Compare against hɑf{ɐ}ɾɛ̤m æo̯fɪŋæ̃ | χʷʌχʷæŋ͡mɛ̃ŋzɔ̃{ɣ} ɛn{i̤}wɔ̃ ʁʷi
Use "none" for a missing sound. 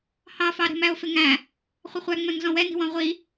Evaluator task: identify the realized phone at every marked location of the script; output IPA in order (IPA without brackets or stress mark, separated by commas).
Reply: ɑ, w, i̤